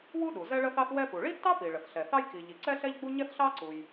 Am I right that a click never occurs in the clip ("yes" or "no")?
no